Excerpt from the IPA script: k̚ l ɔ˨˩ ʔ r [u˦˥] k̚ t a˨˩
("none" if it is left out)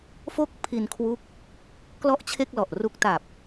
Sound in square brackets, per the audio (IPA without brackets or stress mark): u˦˥